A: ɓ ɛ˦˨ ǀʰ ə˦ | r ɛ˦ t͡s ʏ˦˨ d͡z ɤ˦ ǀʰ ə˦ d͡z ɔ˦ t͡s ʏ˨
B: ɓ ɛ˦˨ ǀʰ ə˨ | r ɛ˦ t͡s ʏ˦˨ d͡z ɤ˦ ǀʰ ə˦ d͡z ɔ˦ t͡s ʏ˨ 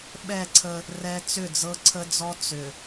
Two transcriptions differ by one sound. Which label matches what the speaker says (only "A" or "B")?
A